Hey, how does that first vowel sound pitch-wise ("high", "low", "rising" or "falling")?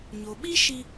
low